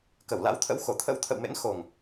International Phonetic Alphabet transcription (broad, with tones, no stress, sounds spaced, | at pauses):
k ə˧˩ w l a̰˧˥ w t̪ʰ ə̰˧˥ w x o˧˩ t̪ʰ ə̰˧˥ w t̪ʰ ə̰˧˨ w m ḛ˧˥ n x o˨˩ ŋ